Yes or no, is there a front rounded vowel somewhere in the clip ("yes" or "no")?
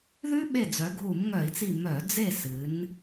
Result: yes